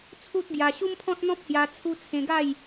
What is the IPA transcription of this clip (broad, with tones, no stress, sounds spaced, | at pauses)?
t͡sʰ u˦ t̚ ɡ j a˧ ɕ u˦ m pʰ ɔ̃˦ t̚ n̪ ɔ̃˦ p̚ h j a˧ t͡sʰ u˦ t͡sʰ ẽ˧ ɡ a˥˧ j